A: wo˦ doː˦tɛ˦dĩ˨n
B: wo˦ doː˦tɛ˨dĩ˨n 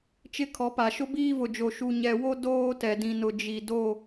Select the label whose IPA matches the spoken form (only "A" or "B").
B